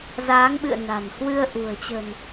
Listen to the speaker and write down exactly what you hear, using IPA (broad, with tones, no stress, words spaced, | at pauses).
zaː˨˦ŋɓɨ̰˧˨ə̯ na̤˨˩n hwɨ˧ə̯ʔṳ˨˩ə̯t͡ɕə̤˨˩n